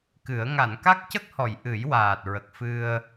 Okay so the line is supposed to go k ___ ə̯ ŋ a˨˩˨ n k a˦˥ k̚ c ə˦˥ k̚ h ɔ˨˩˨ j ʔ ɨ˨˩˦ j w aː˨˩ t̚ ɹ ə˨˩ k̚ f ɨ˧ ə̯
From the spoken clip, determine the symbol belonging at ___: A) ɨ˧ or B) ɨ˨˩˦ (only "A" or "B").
B